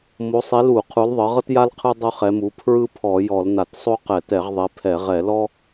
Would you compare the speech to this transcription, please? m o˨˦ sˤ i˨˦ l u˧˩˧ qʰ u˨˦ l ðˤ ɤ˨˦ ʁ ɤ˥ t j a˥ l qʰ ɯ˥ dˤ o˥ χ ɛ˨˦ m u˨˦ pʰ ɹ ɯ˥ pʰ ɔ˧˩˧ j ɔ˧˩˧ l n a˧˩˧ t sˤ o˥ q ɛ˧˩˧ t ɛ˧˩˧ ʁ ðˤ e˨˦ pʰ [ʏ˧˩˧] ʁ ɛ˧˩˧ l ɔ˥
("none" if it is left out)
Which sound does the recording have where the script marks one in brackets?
ɛ˧˩˧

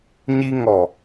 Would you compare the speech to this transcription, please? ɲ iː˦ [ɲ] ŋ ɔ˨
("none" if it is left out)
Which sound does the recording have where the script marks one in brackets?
none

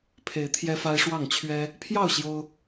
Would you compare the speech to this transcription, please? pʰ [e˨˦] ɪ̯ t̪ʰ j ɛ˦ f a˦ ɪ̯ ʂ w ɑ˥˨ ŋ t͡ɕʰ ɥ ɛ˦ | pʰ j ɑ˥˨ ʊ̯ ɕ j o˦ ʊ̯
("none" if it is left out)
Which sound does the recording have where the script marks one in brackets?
e˨˦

